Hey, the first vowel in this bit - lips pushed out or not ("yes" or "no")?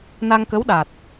no